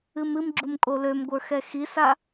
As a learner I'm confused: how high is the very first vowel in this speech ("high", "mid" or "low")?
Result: high